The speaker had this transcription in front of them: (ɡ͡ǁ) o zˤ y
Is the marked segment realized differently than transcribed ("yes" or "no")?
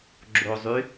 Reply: no